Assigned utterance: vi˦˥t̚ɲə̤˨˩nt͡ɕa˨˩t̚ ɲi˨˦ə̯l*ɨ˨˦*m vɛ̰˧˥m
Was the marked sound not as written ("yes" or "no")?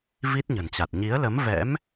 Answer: yes